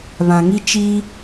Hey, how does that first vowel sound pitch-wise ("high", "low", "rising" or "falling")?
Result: low